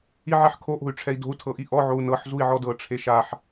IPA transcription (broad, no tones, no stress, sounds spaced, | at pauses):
i ʕ ɛ ħ kʰ o ʔ o̤ y̯ ʈ͡ʂʰ ɛ i̯ d o̤ u̯ tʰ ɤ ʔ i ʔ ɔ ʕ o u̯ n ɤ ħ z u i̯ ʕ ɔ d ɤ ʈ͡ʂʰ e ʃ a ħ